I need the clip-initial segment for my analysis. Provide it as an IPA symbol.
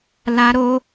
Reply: l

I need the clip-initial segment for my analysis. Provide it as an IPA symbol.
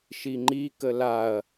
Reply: ʃ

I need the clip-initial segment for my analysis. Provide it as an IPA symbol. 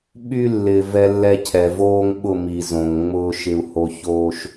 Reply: ɓ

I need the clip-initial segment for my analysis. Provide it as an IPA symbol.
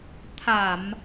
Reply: t̪ʰ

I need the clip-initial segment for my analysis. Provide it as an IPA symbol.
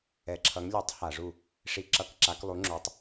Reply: ɛ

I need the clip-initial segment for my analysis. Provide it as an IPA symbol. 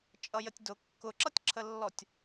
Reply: t͡ʃʼ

